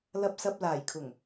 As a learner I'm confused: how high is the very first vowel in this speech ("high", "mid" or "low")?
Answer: low